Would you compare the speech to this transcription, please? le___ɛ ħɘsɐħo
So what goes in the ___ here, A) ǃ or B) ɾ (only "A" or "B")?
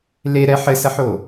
B